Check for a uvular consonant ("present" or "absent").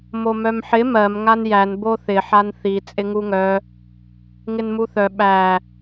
absent